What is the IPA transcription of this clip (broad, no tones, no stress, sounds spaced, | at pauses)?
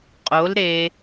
qʼ o l ɾ e